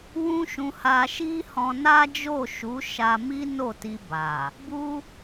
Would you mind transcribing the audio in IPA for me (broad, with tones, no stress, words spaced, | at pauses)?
wũ˦ʃũ˧ha˧ ʃi˦hɔ̃˧ na˦d͡ʒo˦˨ʃu˨˦ ʃa˧mi˦ no˦˨ti˧ ba˨ | bu˦